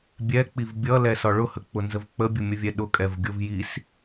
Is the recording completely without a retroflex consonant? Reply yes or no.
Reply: no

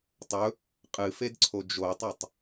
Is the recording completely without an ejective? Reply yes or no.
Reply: no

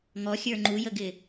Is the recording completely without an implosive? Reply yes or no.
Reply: yes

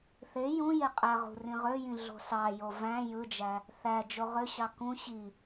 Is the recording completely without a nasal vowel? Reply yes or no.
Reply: no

